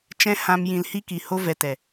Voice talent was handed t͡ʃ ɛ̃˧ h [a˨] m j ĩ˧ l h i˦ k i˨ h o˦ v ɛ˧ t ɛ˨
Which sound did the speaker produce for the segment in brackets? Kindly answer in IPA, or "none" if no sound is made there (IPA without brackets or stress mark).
ã˨